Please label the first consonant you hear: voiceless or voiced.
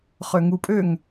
voiceless